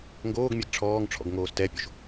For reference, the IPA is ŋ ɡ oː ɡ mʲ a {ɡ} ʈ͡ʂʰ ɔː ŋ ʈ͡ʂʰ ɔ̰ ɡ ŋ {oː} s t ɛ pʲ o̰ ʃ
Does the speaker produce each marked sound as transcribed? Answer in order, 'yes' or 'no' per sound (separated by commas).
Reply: yes, yes